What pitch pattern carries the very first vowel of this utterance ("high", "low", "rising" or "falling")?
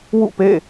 falling